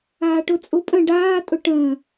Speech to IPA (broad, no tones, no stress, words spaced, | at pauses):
aːʈʊt͡sʼʊ pʼə̃ ɖaː tʼʊʈə̃ː